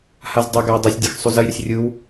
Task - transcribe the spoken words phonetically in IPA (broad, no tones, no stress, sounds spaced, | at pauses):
h a z dˤ ɐ ɡ a j dˤ ɜ sʲ dʲ ɛ x sˤ u z ɜ j ɾ ə sʲ rʲ ɯ w